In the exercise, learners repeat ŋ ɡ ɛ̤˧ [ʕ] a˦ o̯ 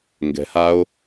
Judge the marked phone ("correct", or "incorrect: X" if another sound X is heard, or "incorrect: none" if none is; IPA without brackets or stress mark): incorrect: h